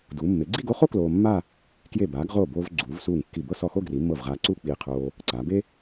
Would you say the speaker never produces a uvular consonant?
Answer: no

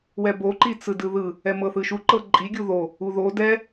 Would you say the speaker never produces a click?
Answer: no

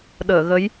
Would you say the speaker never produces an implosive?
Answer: no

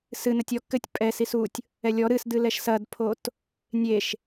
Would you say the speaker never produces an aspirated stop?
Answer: no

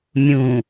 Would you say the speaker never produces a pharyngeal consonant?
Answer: yes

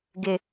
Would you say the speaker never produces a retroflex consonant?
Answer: yes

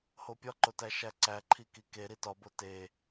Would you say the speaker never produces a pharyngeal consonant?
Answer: yes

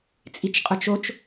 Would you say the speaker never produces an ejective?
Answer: no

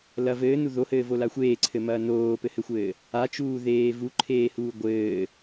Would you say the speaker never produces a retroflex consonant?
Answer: yes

